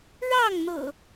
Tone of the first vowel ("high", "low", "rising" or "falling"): falling